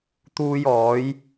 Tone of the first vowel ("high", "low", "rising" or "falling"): high